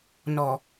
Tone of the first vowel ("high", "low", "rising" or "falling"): low